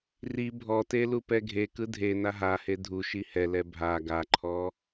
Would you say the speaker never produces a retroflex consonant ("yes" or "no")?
yes